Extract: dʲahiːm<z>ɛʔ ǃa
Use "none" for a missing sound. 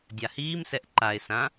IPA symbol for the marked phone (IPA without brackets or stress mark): s